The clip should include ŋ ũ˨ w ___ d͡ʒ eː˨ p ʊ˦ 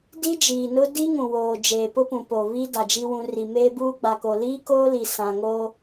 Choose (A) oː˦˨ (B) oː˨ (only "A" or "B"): B